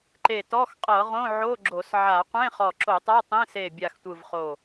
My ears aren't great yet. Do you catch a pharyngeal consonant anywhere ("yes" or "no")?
yes